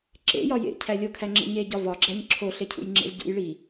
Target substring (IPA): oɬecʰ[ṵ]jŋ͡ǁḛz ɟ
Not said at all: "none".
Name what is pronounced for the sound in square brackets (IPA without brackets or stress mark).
ṵ